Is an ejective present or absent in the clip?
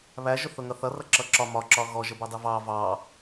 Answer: absent